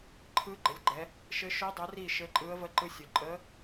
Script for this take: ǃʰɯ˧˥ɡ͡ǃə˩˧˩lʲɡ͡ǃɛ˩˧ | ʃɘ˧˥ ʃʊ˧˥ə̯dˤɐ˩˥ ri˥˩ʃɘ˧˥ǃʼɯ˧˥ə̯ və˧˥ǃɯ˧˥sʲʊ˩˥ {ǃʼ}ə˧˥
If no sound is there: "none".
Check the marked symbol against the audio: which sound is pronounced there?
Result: ǃʼ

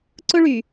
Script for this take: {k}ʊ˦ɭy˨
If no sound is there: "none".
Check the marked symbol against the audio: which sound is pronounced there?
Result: ǀ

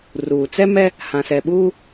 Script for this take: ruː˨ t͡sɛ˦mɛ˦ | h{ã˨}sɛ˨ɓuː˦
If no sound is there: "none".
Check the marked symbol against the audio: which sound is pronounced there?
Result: ã˨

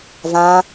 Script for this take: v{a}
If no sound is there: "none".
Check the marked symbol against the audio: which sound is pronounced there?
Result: ã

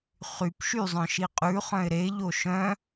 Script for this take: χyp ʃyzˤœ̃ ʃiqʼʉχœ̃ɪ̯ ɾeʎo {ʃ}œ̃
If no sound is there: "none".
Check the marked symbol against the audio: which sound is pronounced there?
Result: ʃ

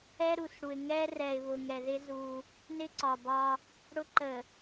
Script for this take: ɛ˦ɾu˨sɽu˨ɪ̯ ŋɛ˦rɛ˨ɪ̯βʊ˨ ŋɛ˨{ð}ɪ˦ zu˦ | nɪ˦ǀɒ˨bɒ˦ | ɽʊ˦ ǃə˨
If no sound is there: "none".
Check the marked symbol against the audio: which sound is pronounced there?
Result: ð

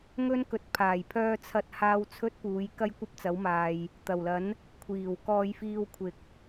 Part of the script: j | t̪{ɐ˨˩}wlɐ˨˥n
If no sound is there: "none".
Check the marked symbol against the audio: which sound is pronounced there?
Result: ɐ˨˩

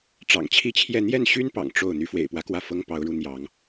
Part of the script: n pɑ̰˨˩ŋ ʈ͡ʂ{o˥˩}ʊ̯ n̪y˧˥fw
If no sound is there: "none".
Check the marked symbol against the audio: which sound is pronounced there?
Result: o˥˩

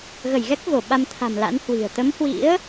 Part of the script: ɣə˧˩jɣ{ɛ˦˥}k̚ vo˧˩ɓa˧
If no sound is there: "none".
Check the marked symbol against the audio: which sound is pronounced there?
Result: ɛ˦˥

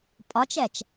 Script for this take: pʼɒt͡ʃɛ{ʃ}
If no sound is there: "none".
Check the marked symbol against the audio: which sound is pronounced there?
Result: t͡ʃ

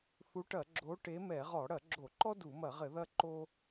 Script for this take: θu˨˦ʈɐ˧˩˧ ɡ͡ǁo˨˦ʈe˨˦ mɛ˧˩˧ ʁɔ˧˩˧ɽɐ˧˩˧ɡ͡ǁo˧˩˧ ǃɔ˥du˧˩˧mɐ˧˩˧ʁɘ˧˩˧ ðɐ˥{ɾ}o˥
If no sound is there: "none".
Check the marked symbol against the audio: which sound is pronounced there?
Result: ǃ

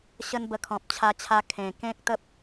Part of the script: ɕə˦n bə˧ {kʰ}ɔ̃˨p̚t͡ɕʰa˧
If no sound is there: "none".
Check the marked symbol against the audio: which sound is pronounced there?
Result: kʰ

